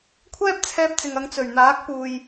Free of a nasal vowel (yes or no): yes